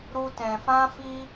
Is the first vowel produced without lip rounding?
no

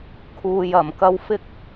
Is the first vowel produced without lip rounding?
no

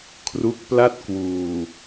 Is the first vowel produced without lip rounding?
no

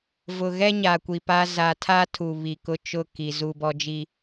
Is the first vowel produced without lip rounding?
no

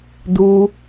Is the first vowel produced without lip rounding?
no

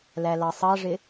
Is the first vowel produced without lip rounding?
yes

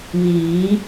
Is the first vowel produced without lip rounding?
yes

